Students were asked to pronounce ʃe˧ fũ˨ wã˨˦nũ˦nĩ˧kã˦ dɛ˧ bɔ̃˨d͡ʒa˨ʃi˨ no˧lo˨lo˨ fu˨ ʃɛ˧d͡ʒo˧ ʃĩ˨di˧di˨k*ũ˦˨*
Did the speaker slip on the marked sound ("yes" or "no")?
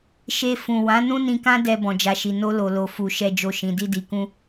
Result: yes